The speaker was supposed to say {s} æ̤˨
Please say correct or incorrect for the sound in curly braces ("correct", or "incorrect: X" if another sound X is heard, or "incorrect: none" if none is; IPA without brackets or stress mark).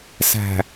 correct